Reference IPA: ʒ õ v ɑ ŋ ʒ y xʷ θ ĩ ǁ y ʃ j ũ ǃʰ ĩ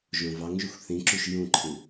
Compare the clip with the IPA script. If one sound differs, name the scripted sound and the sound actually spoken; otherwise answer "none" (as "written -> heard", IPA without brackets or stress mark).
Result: none